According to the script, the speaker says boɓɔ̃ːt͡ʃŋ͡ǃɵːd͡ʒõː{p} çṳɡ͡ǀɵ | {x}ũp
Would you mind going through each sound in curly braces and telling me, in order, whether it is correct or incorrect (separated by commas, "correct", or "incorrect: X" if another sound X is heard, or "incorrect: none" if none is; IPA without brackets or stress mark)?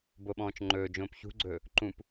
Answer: correct, incorrect: ǃ